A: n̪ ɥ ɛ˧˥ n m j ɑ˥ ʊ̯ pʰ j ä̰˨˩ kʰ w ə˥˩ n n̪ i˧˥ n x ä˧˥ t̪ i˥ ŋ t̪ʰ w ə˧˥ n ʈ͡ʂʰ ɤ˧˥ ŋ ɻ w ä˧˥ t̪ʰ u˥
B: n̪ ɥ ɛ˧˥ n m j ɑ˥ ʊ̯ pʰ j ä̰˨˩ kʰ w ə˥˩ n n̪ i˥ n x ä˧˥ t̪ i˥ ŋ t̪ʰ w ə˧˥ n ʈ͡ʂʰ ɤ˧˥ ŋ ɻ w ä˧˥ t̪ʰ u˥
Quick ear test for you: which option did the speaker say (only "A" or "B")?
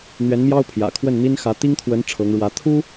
B